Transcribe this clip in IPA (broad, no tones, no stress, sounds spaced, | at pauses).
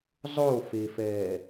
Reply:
zˤ o f e f ɛː